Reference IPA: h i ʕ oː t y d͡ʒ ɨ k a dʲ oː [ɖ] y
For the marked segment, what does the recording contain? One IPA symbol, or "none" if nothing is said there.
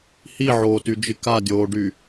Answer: ɖ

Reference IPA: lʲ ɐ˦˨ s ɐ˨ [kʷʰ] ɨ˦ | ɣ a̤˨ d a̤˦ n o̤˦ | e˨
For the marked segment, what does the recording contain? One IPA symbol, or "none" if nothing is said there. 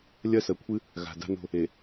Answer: kʷʰ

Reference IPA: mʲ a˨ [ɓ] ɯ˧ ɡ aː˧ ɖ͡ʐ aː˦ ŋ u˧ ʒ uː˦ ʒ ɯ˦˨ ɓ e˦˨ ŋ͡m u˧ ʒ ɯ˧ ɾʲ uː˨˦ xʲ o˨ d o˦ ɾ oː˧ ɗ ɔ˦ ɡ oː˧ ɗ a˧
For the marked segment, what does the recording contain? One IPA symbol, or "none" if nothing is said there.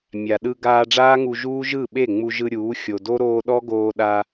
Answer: ɗ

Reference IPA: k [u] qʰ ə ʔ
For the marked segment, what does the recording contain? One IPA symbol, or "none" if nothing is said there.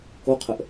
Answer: o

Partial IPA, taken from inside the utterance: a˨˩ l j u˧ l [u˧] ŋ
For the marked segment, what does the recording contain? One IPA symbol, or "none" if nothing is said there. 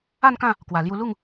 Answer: u˥˧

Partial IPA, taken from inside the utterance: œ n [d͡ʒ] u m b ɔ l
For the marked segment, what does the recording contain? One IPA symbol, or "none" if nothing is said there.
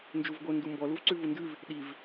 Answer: d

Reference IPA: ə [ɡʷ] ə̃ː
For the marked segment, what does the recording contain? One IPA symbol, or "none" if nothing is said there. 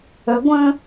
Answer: ɡʷ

